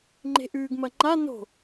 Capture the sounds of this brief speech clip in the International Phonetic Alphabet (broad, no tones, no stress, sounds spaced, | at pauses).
ŋ͡ǃ e̤ ʔ ʉː ɡ m ɐ ŋ͡ǃ a n o̤